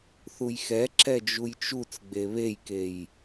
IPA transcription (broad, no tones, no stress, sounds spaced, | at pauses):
θ u j x ɛ ǁ ɛ d͡ʒ u j t͡ʃ u t͡s ɡ͡b e β e j k e j